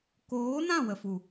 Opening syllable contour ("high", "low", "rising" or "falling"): rising